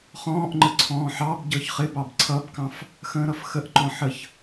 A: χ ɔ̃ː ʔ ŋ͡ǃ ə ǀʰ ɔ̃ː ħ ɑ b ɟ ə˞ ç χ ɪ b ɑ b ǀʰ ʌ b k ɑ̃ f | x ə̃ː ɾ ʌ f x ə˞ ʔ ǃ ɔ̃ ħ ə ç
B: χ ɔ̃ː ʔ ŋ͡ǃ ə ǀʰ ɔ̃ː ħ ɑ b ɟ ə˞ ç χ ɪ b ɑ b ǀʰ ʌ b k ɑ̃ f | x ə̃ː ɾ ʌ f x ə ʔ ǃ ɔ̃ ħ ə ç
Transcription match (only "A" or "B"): B